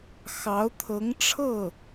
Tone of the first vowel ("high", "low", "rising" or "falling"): rising